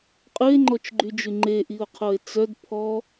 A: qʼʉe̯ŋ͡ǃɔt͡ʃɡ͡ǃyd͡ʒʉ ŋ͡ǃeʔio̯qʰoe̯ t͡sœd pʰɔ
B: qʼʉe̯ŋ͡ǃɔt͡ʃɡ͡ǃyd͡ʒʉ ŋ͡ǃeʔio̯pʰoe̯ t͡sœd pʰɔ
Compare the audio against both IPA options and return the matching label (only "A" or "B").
A